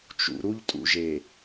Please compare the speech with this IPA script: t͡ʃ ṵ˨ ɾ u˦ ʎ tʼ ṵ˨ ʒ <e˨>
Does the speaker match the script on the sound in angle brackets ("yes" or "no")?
yes